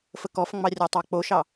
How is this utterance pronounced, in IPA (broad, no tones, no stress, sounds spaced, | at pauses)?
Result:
f ə k ɔ f ŋ͡m ɑ rʲ a tˤ ɑ k͡p o ʃ ɑ